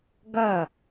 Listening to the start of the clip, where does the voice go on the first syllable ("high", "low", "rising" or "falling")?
falling